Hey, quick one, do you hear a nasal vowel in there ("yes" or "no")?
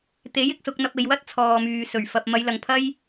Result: no